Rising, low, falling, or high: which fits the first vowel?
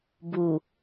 low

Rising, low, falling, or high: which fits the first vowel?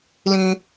low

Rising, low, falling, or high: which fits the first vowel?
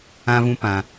high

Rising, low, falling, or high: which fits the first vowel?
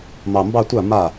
low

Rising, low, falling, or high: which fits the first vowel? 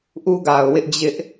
high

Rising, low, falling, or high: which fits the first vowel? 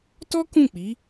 high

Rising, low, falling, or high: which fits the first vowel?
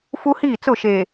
high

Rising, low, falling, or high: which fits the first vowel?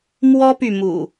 high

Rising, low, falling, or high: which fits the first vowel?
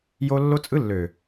high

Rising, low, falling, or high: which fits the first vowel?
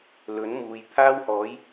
rising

